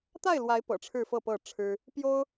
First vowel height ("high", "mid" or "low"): low